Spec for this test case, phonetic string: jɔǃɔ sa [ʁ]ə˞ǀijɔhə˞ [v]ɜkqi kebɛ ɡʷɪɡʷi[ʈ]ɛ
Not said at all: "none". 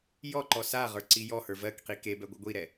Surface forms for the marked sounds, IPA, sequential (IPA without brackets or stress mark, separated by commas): ʁ, v, ɾ